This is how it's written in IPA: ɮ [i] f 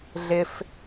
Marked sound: incorrect: ɪ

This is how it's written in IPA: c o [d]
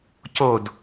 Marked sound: correct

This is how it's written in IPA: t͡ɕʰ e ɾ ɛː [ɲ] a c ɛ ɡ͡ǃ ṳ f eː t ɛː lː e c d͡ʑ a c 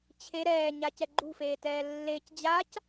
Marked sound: correct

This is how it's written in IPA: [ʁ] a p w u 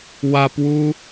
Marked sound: incorrect: w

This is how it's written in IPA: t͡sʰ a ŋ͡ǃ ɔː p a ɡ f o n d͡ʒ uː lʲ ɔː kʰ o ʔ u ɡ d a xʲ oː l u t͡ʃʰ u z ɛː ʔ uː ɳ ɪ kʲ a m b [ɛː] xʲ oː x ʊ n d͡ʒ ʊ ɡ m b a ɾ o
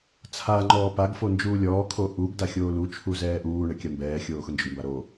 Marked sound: correct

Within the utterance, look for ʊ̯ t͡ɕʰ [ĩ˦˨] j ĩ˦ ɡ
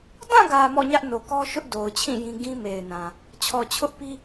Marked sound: correct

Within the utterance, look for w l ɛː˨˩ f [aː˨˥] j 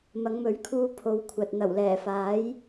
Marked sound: correct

